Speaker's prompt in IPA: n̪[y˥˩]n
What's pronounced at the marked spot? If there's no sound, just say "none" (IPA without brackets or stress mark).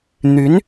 y˧˥